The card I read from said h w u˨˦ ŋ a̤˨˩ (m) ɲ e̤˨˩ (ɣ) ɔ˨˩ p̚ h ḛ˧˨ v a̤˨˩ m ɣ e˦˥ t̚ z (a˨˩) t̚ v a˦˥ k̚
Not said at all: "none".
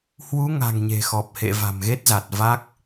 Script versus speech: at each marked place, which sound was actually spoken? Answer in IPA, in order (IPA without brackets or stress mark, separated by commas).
ŋ, x, a˨˩